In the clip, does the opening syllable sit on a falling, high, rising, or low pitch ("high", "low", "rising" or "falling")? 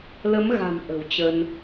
rising